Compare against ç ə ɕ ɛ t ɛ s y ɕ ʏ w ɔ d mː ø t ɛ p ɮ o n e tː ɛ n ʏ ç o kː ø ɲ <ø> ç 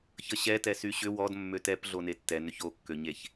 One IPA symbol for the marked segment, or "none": e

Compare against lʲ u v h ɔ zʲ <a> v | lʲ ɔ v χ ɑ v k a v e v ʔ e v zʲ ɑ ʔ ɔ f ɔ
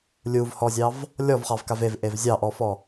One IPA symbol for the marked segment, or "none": ɑ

